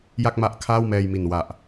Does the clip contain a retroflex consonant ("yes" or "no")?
no